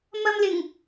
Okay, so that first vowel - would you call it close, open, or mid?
open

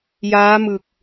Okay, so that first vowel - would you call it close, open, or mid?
open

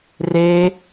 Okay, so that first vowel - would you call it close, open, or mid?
mid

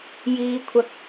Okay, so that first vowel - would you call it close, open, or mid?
close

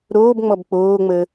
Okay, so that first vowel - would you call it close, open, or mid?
mid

